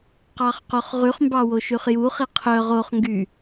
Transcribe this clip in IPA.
qɑχqoχʁyχmbɑ woʃyχjuχi qʰœ ʁoχŋɡy

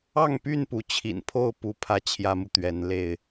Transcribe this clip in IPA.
ɑ˥˨ŋpy˥˨n pu˨˦t͡ɕʰḭ˨˩n pʰo˥˨ʊ̯pu˨˦pʰä˨˦ t͡ɕʰjä˦mu˨t̪ɥɛ˨˦nle˥˨ɪ̯

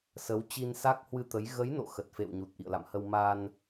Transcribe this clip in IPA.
sə˨˦w t͡ɕi˧nsa˦˥k̚hwɨ˧t̪ə˨˦j ɣə˨˦jno̰˧˨ xə˨˩t̚fḛ˧˨wɲu˨˩t̚ ʔḭ˧˨ə̯la̰˧˨mhə˧w ma˧n

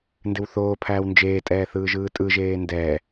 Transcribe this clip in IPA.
ndɪwθoːpʰæːw nd͡ʒeːtʼɛː θɯːʒɯːtʼɯʒeː ndɛː

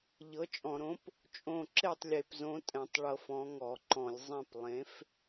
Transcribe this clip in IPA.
ʎɤ˨˥t͡ʃʼɔ̃˧˩˧ɾõ˨˥p | t͡ʃʼõ˥˩ ǁe˥˩tˤlʲe˧˩˧pzõ˨˥ tʼɛ̃˧˩˧tˤɭɤ˧˩˧f ɔ̃˨˥ŋɔ˧˩˧ǃɔ̃˧˩˧lʲ zˤɛ̃˥˩p lˠẽ˨˥f

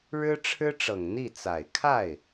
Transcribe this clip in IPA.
ɻɻ̩˥ʈ͡ʂʰɻ̩˥ʈ͡ʂɤ˨˩ŋ n̪i˥˩t͡sa˨˩ɪ̯ kʰa˥˩ɪ̯

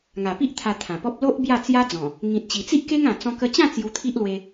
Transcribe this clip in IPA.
ŋa˨˩pi˦ʔ t̪ʰa˧t̪ʰã˨˩pɔ˦p̚ lo˦ʔ bja˥˧t͡sja˦d͡zɔ̃˨˩ | ŋĩ˨t̚t͡ɕi˨˩t͡si˦ʔ ke˦ŋã˨˩ t͡sɔ̃˧kə˧t͡ɕã˥˧ t͡sju˧t̪ʰi˦ʔlwe˧

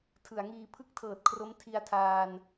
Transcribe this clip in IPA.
tʰɯ˩˦a̯ŋiː˧ pʰɯ˥˩k̚tʰɤː˨˩t̚kʰro˦˥m tʰi˧a̯tʰaː˧n

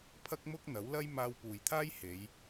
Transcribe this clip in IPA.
pʰɐ˥k̚mʊ˥k̚ n̪ɐ˨˥w lɐ˥j maː˧wpuː˨jt̪ʰaː˥jhe˨˧j

